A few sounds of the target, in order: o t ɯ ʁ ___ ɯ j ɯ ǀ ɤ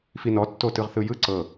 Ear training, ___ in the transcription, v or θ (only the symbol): θ